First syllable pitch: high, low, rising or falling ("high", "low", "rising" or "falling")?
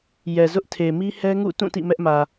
low